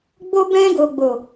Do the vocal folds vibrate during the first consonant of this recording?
yes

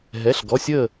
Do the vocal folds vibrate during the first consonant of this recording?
yes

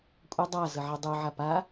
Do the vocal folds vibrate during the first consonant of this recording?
no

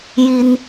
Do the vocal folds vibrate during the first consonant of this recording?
yes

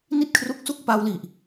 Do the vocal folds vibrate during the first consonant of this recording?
yes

